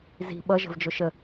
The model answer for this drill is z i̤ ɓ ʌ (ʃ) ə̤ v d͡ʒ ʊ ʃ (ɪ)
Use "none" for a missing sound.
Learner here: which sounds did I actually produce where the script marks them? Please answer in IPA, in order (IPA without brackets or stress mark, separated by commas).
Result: ʒ, ə